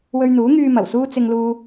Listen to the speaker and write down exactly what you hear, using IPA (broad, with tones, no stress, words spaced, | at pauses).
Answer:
wɵ˧ɥn̪uː˨˥ŋyː˧ mɐ˨˩wsuː˥ t͡sɪ˧ŋ luː˧